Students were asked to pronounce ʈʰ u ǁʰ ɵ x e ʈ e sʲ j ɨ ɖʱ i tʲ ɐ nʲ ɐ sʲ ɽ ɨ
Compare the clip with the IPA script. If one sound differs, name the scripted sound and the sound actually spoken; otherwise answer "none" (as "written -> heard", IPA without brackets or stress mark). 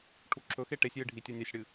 none